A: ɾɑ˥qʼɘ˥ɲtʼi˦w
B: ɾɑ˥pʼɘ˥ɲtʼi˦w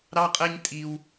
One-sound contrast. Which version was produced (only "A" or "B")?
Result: A